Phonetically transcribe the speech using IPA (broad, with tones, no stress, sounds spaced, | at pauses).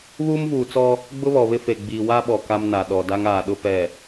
β uː˦ m v uː˨ t͡s ɔ˦ | ɡ͡b ʊ˦ β ɔ˨ β ɪ˦ f e˨ ɡ͡b iː˨ w a˦ ɓ ɔ˨ k a˦ m n a˨ ɗ ɔ˨ d a˦ ŋ aː˨ ɗ ʊ˦ p ɛ˨